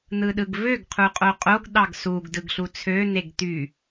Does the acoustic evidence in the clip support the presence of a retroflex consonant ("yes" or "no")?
no